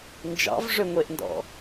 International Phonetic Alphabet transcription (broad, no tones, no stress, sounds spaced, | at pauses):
n d͡ʒ ɑ̰ v ʐ ø ŋʷ e ʔ n d ɔ̰